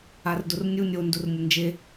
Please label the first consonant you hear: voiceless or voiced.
voiced